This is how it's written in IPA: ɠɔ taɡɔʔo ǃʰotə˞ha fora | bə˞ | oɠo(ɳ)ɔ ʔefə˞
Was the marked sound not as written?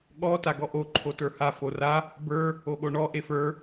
no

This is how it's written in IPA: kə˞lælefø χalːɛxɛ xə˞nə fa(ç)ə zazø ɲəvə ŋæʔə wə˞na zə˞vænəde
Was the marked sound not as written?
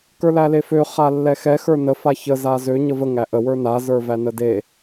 no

